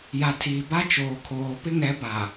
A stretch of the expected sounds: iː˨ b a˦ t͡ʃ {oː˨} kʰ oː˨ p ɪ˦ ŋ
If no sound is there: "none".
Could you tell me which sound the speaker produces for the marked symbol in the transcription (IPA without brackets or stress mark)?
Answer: oː˨